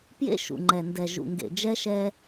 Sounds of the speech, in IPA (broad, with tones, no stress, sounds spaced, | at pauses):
p j ḛ˦ ʃ ṵ˨ ŋ͡ǃ ɛ˨ n d ɛ˨ ʒ ṵ˨ ŋ ɡ ḛ˨ d͡ʒ ɛ˦ ʃ ɛː˦